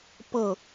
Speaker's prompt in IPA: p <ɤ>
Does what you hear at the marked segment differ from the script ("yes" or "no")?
no